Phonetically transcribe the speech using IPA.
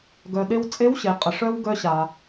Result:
ɡœ˩ ɗe˧wt͡sʼe˧˥wɕe˩˧ qʼə˩ʂœ˧w ɡœ˧ɕa˩

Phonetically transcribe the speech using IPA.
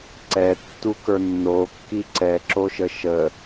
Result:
ǀɛtːukə˞ nːokːi ǀɛǁoʃə ʃə

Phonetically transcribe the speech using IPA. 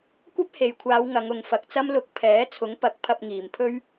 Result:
kʷɐ˥p̚he˨jkʷʰaː˨˧w ŋɐ˨˧ŋʊ˨ŋfɐ˨k̚t͡sɐ˥m lʊ˧k̚ pʰɛː˨˥ t͡sʰʊ˨˥ŋpɐ˨˥k̚ pʰɐ˧p̚ŋiː˨˩mpʰɵ˥ɥ

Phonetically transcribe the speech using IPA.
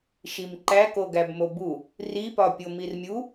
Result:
ʃimǃæ koɡæbmobu | ri pɒpʲomirmʲu

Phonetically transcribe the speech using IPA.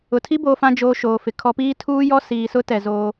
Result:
ʊ˨tʰi˦ bo˨fã˨d͡ʒo˨ ʃoː˨fɪ˨kʰɔ˦ piː˦tʰuː˦jɔ˦ siː˨sʊ˦tɛ˨ zoː˦

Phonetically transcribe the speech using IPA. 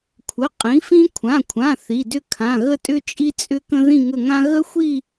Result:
kʷʰə˩˧˩ qʼĩ˩˥fĩ˦ kʷʰã˩˧˩kʷʰã˩˧˩ θi˩˧˩dʏ˦˨ kʰã˩˧˩ɣə˦˨tʼʏ˦ t͡ʃʼi˦t͡sʼʏ˦kə̃˦ ðĩ˦˨ŋə˦˨ŋã˦ ɣə˦xʷi˦˨

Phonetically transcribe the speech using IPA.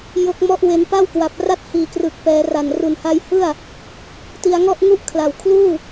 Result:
jo˦˥k̚mɔ˥˩ʔwe˧n pa˥˩wkwa˨˩p̚ra˥˩t̚ hiː˨˩krɯ˨˩k̚pɛː˩˦ra˨˩n ru˨˩nha˧jhɯ˥˩a̯ | ti˧a̯ŋɔ˥˩ʔ ŋu˥˩ʔkʰla˨˩w kʰluː˥˩

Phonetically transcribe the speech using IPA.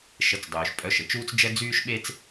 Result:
ʃə˩˧˩t͡sdˤyː˩ʃ pʼœ˩˧˩ʃ ə˩t͡ʃuː˧t͡sd͡ʒɛ˧ d͡zyː˧ʃɓe˧t͡s

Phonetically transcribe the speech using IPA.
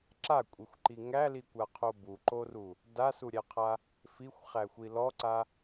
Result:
ǁakʷʼixʷǃi ŋælikʷaqʰo buǃoru | dasuɾʲæqʰa | fixʷχæxʷi lɔǀa

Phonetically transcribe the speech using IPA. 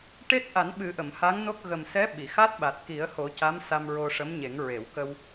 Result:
ʈe˦˥t̚ʔa˨˩˦nɓɨ˨˩˦ ʔə˨˩˨mha˧˥ŋno˦˥k̚ ɣə˨˩msɛ˧˥ ɓi˨˩˨ xa˦˥t̚ɓa˨˩t̚ ki˨˩˦ə̯ho˨˩˦ ca˧˥msa˧m ɹo˧ʂə˧˥mɲe˨˩˦ŋ ɹe˨˩˨wkə˧w

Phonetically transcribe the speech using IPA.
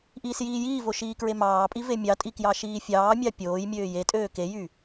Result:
ʔiːsjiːjiːvo ʃiːkɹemɑːpʼi vemʲɑtʼi kjɑʃiːfʲɑːmʲɑ pʲoːjmʲøː jetʼøː kejy

